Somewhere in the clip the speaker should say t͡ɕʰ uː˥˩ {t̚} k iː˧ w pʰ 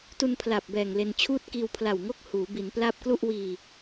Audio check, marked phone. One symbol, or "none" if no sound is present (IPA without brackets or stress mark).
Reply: t̚